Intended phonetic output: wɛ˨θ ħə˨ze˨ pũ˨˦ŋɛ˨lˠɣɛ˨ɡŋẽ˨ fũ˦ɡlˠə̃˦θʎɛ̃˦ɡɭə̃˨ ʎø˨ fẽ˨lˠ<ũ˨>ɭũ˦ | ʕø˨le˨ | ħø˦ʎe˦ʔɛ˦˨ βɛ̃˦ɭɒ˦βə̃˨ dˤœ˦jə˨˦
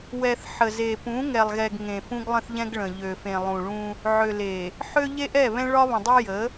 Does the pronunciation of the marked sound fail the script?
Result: no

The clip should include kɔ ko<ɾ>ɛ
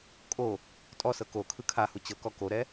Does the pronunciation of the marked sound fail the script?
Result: no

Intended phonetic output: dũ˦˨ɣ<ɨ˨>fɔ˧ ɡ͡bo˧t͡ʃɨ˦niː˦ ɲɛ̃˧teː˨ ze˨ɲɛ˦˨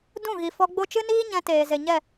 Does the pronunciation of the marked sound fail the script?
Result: yes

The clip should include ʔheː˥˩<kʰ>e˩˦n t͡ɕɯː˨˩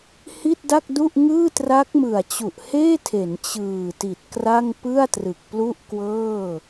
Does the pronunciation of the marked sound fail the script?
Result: yes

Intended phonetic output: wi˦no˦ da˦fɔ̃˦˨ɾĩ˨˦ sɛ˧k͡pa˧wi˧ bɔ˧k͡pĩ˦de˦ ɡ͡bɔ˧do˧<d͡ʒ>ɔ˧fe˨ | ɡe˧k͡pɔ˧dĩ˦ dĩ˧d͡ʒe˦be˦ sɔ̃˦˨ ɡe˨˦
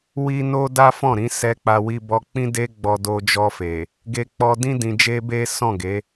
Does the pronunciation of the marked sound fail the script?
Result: no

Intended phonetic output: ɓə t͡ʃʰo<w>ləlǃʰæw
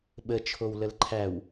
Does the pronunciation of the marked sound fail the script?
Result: no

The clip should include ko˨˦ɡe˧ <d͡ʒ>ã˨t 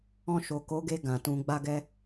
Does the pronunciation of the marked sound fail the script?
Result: yes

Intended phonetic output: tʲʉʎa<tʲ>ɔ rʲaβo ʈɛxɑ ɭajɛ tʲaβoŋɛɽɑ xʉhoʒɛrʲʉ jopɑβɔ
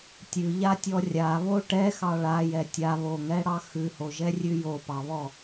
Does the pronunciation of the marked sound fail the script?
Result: no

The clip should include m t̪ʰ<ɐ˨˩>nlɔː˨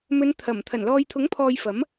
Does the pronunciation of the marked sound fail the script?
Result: no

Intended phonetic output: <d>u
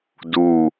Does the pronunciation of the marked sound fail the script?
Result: no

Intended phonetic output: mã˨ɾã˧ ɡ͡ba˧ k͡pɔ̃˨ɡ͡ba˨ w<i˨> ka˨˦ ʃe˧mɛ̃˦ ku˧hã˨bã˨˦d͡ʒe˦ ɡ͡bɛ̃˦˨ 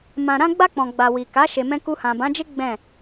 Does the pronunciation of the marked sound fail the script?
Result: no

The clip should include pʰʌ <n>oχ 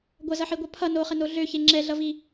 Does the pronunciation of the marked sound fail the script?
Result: no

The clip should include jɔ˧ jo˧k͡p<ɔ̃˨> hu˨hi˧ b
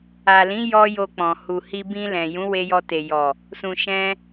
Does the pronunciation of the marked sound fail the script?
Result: no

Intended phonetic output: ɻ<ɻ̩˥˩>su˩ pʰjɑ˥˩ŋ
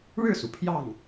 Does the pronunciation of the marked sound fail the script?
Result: no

